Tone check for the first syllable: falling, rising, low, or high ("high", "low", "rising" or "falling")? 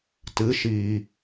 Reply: rising